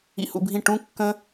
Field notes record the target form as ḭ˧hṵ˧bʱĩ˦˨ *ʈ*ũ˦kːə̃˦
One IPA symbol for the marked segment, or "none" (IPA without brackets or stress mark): ʈ